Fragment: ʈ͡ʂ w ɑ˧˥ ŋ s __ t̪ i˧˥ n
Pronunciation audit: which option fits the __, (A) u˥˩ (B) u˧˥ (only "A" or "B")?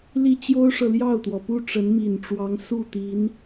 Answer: A